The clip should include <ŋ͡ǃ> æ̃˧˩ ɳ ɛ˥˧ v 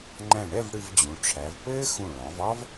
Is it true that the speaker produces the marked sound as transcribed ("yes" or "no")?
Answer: yes